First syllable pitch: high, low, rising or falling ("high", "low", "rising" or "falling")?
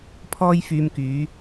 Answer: high